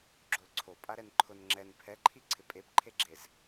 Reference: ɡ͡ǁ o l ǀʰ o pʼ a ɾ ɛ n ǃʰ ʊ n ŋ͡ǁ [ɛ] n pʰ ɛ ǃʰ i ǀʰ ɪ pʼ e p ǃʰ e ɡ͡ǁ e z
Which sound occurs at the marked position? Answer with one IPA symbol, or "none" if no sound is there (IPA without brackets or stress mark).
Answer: ɛ